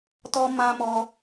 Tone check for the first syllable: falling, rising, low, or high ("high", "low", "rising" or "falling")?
high